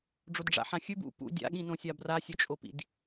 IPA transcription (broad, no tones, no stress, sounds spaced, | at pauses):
ɖ͡ʐ o d ɖ͡ʐ a̰ ħ ã xʲ ʉ b ṵ p ṵ dʲ a̰ ɠ ĩ n õ sʲ a b r a sʲ ɵ t͡ʃʼ o p ḭ d